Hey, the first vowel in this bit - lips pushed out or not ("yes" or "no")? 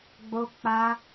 yes